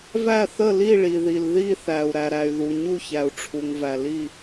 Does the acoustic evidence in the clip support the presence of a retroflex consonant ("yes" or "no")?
yes